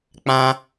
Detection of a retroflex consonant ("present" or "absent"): absent